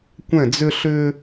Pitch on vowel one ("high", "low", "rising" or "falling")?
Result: falling